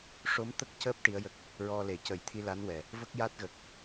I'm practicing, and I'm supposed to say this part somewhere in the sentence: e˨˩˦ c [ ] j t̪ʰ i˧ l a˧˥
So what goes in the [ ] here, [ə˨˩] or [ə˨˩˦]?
ə˨˩˦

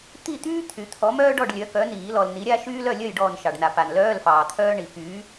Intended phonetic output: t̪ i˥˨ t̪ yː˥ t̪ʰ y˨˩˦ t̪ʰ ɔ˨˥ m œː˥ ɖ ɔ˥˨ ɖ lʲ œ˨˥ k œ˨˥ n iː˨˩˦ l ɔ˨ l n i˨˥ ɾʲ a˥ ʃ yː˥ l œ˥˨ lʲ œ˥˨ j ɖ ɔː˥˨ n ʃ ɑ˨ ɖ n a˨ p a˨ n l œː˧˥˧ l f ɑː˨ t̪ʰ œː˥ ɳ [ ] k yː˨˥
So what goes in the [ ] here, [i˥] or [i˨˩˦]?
i˨˩˦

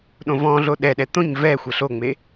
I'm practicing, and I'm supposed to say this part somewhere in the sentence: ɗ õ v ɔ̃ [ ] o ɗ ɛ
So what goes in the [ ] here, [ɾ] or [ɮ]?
ɮ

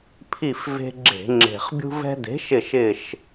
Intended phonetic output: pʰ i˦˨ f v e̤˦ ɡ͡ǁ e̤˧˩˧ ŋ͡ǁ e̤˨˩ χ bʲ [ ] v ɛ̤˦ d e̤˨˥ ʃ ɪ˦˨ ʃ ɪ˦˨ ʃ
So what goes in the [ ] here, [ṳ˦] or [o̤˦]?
ṳ˦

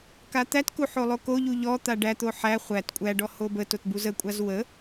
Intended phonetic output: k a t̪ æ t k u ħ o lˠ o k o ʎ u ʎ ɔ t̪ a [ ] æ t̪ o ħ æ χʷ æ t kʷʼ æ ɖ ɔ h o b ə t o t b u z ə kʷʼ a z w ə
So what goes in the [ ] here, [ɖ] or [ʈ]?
ɖ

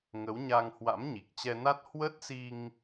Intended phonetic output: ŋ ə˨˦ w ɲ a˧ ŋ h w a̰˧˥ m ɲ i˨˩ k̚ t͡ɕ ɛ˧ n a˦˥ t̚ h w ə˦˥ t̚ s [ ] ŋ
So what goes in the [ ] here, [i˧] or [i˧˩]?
i˧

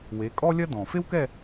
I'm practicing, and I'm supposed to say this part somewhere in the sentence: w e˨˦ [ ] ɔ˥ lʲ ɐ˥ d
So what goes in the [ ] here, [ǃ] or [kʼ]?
kʼ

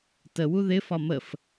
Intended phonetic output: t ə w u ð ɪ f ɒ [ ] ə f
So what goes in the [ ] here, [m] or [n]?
m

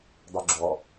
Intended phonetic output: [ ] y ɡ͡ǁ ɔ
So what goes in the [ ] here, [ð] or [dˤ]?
dˤ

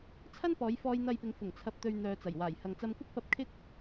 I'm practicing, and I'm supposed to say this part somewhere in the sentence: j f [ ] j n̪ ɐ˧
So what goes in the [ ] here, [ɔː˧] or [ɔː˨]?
ɔː˧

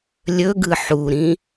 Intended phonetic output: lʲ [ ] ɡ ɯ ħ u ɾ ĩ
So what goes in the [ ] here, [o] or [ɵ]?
ɵ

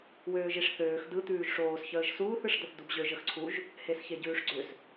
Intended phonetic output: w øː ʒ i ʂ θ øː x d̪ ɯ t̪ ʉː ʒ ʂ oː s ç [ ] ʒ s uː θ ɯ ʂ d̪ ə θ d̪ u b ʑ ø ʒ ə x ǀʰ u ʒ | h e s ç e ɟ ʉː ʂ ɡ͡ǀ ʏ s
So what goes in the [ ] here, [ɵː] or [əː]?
əː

